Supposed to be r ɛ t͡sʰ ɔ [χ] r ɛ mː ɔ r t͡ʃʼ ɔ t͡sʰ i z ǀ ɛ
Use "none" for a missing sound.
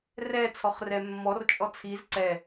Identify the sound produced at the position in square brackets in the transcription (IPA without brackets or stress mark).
χ